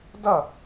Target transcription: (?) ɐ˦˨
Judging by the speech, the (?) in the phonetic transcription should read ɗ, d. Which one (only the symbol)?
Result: d